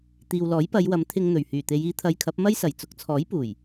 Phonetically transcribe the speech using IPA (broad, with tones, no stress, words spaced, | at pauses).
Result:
t̪iː˨wlɔː˨˥jpɐ˨˧jwɐ˨˥m t̪ʰɪ˧ŋn̪ɵ˨˩ɥhyː˨˩t̪e˨˧j iː˨˧t̪ʰɐ˨˧j kʰɐ˨˥p̚mɐ˥j sɐ˨˩jt͡sʊ˨k̚t͡sʰɔː˨˥jpuː˨˩j